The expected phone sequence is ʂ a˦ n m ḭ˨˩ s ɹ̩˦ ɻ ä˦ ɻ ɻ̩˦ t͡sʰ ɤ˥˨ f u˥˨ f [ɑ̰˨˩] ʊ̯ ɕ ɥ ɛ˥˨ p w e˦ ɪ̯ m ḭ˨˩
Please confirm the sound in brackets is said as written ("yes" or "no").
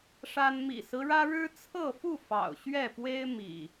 yes